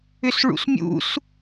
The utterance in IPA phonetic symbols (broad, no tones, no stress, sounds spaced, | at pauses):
ʏ s ɭ ṵ s mʲ ṵ s